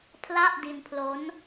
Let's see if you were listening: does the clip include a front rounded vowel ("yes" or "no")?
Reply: no